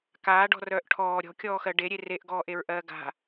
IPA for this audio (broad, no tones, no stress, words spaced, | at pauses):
kaːɖɔ̤rœːʔ ʈʰɔː ɾʲɔ̤kʲɔːxɜ ɖeɾʲe reʔɡɔːʔeɹʔɜː ɡa̤